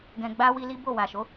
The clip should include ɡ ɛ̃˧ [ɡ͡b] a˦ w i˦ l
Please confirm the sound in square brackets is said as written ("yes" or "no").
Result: yes